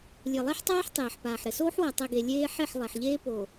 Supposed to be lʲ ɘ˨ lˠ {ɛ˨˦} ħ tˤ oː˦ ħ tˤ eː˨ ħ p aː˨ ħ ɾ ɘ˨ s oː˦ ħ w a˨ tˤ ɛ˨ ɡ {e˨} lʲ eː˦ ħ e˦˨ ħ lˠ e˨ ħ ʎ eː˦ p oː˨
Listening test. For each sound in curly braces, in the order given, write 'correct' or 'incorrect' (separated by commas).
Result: incorrect, correct